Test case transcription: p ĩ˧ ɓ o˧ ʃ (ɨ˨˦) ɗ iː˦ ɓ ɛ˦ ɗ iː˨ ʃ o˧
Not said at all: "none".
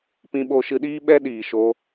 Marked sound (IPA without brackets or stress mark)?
ɨ˧